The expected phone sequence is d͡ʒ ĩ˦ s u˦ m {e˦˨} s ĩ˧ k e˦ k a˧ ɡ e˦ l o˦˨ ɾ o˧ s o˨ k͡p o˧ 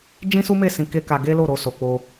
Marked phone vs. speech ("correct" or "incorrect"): correct